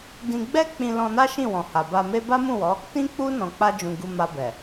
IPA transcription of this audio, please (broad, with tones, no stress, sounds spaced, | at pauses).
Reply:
d ĩ˧ ɡ͡b ɛ˦ k͡p ĩ˧ l ɔ̃˧ n a˦ ʃ ĩ˦˨ w ɔ̃˨ h a˨ b a˧ m e˦ b a˦ m ũ˦˨ w ɔ˨˦ | t ĩ˦ k͡p u˦ n ɔ̃˧ k͡p a˦ d͡ʒ ũ˧ ɡ u˧ m a˧ b ɛ˨